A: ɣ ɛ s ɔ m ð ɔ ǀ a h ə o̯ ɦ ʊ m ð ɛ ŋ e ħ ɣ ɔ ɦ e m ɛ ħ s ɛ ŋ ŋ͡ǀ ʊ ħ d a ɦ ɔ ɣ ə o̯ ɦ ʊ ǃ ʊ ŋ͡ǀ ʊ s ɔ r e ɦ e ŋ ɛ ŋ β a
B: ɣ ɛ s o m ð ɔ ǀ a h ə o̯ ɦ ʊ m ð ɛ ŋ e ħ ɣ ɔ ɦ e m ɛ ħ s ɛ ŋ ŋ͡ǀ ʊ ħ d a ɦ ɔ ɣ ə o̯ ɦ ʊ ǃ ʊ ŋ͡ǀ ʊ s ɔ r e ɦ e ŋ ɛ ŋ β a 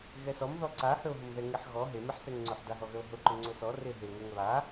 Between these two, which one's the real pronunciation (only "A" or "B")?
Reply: A